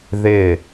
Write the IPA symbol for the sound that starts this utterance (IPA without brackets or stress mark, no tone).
ð